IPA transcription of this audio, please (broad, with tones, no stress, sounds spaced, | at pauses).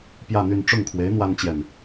p j ä˥˧ n̪ y˥˧ n ʈ͡ʂ ʊ˥˩ ŋ kʰ w e˧˥ ɪ̯ n̪ w a˥ n t͡ɕ j ɛ˨ n